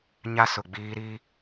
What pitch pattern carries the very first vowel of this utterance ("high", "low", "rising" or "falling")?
high